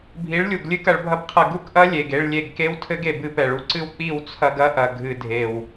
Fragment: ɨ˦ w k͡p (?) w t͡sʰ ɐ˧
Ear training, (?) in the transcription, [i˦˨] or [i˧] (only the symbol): i˦˨